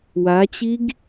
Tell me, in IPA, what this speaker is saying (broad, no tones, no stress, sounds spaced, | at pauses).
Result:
w a t͡ɕ i ɡ